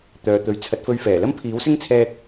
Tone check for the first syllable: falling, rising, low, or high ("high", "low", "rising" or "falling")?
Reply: low